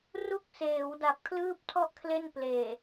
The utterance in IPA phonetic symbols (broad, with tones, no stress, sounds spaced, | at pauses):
r u˦˥ k̚ s eː˩˦ w d a˨˩ p̚ kʰ l ɯː˥˩ p̚ tʰ ɔ˥˩ ʔ kʰ l e˥˩ n p l eː˨˩